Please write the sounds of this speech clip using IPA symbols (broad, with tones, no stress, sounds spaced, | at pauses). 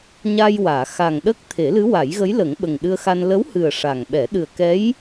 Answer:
ɲ a˧ j w aː˨˩˨ x a˨˩ ŋ ɗ ə˦˥ k̚ t̪ʰ e˨˩˦ l ɨ˧˥ w a˨˩˦ j ɣ ə˧˥ j l ə˨˩˦ ŋ ɓ ə˨˩ ŋ ɗ ɨ˧ ə̯ x a˧ n l ə˧˥ w h ɨ˨˩ ə̯ ʂ a˨˩ ŋ ɓ ɛ˨˩˦ ɗ ɨ˨˩ ə̯ k ɛ˧˥ j